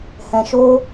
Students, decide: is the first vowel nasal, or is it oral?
nasal